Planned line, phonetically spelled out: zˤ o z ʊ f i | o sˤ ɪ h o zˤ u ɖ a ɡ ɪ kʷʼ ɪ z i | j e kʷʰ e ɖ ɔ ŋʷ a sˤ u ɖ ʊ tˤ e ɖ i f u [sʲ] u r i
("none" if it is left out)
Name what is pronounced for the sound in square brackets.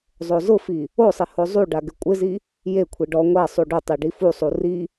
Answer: sˤ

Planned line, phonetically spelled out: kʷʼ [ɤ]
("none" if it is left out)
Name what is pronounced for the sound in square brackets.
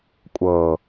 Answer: ɤ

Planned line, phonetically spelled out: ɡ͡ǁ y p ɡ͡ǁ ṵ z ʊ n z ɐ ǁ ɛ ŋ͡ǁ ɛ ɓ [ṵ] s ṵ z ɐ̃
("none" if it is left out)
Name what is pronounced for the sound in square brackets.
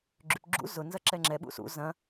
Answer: ṵ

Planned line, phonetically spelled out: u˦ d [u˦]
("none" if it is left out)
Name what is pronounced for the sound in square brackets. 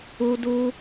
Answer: u˦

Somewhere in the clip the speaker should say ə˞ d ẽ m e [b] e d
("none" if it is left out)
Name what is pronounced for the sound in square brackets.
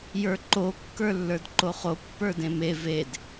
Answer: v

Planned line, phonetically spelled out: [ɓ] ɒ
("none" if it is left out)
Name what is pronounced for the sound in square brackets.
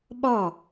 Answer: ɓ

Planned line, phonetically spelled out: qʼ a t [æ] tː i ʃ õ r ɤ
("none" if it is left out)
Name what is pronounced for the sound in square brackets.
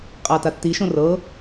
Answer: a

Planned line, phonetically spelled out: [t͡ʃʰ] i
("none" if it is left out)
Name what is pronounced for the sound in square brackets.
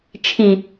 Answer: t͡ʃʰ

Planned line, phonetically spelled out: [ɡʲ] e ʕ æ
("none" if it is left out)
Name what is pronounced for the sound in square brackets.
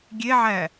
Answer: ɡʲ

